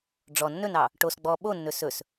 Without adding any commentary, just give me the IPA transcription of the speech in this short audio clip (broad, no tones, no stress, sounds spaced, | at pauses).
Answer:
ɖ͡ʐ ɔ nː ɵ n ɑ | ʈ o s ɡ͡b ɔ ɓ o nː ɵ s ɵ s